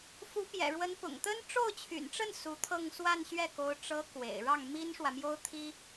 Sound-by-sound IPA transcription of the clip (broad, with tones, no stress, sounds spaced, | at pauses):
f u˧˥ p j ɛ̰˨˩ ɻ w ə˧˥ n p ʊ̰˨˩ ŋ t̪ ə˥ n ʈ͡ʂ o˥˩ ʊ̯ t͡ɕʰ y̰˨˩ n ʈ͡ʂ ə˥˩ n s u˧˥ t̪ʰ ɤ˥˧ ŋ s w a˥˧ n ɕ ɥ ɛ˥˩ k o˧˥ ʊ̯ ʈ͡ʂ ɤ˧˥ k w ḛ˨˩ ɪ̯ ɻ ɑ˥˩ ŋ m i˥ n ʂ w ä˨ m j o˥ ʊ̯ t̪ʰ i˥